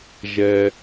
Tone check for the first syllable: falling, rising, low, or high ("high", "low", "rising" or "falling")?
low